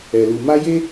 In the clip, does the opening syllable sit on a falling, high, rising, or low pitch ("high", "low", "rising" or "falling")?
low